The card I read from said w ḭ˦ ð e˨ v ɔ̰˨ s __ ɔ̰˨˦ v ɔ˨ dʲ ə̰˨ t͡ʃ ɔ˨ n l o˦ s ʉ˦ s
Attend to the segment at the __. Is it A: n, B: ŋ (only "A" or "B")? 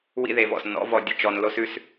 A